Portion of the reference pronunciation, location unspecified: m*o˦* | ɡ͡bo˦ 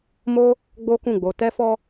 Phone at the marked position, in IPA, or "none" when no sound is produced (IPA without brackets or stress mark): o˦